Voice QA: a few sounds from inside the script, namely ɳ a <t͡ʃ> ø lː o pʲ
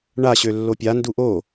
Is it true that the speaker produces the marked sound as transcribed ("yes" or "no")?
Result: no